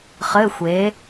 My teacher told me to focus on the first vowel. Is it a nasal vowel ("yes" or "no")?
no